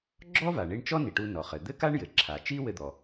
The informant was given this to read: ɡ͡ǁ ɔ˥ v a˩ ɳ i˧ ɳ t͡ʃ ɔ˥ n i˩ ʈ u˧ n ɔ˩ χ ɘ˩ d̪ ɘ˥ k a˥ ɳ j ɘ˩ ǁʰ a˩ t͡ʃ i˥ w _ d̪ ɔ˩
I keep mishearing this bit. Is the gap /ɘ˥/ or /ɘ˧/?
ɘ˧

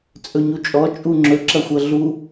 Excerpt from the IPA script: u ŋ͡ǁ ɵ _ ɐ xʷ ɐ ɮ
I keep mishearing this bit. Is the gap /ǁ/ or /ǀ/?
ǁ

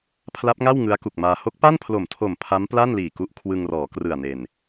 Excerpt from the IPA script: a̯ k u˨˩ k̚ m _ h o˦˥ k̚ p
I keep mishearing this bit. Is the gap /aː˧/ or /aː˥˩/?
aː˧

